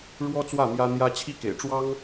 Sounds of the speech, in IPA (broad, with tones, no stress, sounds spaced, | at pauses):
ɻ w ɔ˥ t͡s w ä˥˩ m j ä˥ n̪ j ä˥ t͡ɕʰ i˥˩ k ḛ˨˩ ɪ̯ ʈ͡ʂ w ɑ˥ ŋ